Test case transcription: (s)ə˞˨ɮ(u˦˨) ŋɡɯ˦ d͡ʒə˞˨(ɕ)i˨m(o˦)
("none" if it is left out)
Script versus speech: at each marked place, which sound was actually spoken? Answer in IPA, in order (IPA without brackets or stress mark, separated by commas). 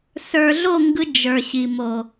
s, o˦˨, ɕ, o˨